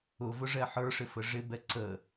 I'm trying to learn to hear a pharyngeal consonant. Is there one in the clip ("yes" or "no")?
yes